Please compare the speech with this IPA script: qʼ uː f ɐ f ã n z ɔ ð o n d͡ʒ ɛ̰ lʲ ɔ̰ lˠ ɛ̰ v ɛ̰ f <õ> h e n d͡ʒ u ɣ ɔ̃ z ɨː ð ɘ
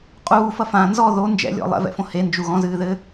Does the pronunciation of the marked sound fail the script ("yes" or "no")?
no